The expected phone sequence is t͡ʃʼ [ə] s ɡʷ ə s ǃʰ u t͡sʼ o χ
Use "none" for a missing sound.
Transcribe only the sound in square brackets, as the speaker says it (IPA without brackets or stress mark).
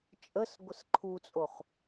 ə